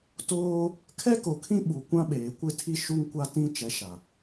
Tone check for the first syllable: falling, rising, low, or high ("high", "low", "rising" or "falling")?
high